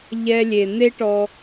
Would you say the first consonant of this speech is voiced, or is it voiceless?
voiced